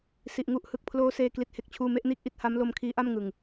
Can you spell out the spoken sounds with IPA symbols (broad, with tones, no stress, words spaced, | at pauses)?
si˨˩ʔŋu˦˥ʔhɯ˨˩k̚ pʰloː˦˥seː˧ kli˦˥t̚he˥˩k̚t͡ɕʰuː˥˩ me˥˩ʔniː˥˩k̚ʔi˦˥t̚ ha˦˥mlo˧m kʰiː˦˥ʔa˥˩mŋɯ˨˩ŋ